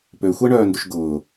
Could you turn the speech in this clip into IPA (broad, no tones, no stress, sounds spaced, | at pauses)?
p ø xʷ ɛ ɳ œː n d ʏ ʃ ɡ ʊː